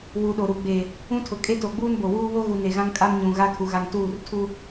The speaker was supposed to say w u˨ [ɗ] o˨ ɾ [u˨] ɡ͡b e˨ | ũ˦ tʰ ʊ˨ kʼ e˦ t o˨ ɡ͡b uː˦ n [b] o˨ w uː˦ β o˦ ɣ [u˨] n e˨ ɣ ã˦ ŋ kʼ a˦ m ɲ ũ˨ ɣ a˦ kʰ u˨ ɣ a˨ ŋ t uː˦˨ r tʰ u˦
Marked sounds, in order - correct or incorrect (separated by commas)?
correct, correct, correct, correct